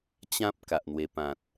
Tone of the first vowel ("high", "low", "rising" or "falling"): high